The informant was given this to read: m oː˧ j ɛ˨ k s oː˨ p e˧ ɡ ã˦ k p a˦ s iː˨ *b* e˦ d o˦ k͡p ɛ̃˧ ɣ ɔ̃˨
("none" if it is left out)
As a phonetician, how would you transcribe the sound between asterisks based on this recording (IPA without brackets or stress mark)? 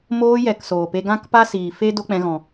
f